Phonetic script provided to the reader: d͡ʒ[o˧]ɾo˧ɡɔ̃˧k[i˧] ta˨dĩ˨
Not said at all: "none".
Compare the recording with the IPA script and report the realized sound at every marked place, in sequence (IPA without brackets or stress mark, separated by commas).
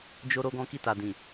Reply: o˧, i˧